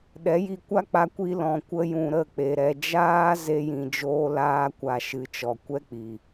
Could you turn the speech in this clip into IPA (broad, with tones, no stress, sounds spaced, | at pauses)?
ɗ ɛ˨˦ j i˧ kʷ a˦ k͡p a˧ kʷ i˧ l ɔ̃˨ kʷ ə˧ j ũ˨ ɾ ə˦˨ k͡p e˨ ɾ ɛ˨ d͡ʒ aː˦ z e˧ j ĩ˨ d͡ʒ oː˧ l aː˧ kʷ a˨ ʃ ɨ˨˦ t͡ʃ ɔ˨ kʷ ɛ˦ k͡p i˨